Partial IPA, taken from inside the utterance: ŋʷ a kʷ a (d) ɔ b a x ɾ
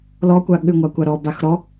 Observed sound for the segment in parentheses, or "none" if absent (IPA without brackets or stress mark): ɾ